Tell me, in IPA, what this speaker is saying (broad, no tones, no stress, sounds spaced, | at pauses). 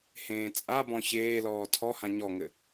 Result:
h ẽː t͡sʼ a b ɔ̃ ç eː l ɔː tʰ ɔ h ã ɲ ɔ ŋ ɘ